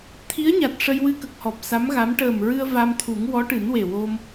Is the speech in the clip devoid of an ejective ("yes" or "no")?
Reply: yes